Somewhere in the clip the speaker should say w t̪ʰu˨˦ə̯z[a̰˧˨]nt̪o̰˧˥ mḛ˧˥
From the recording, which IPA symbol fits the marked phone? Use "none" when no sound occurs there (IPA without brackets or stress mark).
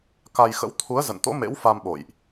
ə̰˧˨